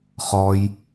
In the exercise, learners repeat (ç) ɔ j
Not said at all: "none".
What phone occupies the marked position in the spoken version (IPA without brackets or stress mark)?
χ